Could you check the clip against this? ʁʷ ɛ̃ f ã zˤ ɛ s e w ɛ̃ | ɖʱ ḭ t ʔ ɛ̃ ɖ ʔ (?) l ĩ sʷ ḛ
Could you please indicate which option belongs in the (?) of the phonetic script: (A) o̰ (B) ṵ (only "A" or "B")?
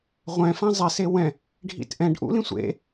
B